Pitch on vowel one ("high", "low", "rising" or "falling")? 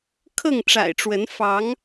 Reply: falling